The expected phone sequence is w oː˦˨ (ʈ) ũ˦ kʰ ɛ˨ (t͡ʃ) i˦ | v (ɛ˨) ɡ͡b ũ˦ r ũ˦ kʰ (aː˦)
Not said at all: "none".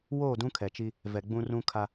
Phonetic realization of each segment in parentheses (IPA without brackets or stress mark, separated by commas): d, t͡ʃ, ɛ˨, a˦